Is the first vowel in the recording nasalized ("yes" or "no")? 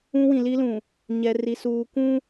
yes